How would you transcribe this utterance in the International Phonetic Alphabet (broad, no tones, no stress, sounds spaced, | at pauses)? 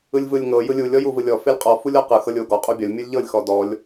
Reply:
ɯ lʲ v ɯ lʲ ŋ ɤ j ɯ lʲ u lʲ ɔ j u v ɯ lʲ ɔ f e lʲ qʼ ɔ f u lʲ ɔ q ɯ x ɤ lʲ o ɡ ɔ qʼ u bʲ ɒ lʲ mʲ ɤ lʲ ʎ ɤ lʲ x ɔ d ɔ lʲ